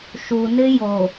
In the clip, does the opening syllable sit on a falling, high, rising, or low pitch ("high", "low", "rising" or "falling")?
low